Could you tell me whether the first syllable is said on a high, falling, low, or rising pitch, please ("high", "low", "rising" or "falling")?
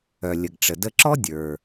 low